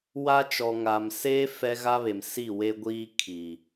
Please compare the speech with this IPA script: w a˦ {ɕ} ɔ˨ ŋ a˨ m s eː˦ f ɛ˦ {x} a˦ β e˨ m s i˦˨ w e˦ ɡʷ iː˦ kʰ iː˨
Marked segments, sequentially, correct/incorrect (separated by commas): incorrect, incorrect